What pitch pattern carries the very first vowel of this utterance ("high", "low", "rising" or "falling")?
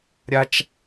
high